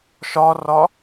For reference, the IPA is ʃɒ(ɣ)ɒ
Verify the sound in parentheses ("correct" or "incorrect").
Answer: incorrect